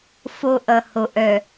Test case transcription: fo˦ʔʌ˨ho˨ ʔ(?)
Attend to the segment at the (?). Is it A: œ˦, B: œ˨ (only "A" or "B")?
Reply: B